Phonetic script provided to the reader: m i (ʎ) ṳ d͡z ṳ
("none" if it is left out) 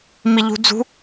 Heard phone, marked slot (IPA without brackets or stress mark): ʎ